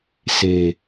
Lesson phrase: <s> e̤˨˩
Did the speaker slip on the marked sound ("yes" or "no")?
no